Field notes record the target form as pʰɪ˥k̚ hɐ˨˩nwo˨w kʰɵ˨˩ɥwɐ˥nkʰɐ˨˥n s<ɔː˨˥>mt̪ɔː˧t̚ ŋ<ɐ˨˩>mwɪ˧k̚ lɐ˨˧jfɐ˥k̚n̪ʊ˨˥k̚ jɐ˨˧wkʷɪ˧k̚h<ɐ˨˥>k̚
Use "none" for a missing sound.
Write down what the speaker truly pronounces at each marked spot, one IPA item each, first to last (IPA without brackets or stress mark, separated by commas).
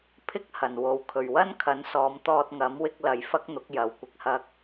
ɔː˨˧, ɐ˨˥, ɐ˥